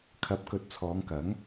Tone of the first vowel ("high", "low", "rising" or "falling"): rising